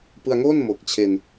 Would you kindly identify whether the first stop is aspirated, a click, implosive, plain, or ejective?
plain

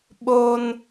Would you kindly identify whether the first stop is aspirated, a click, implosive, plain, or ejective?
implosive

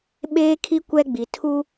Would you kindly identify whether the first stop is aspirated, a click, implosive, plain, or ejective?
implosive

